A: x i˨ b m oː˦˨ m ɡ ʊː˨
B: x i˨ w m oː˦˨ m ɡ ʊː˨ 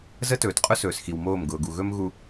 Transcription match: B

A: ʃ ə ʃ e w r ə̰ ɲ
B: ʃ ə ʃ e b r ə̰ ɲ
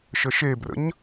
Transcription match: B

